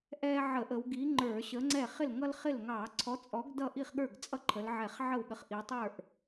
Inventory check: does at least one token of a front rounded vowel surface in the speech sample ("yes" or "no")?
no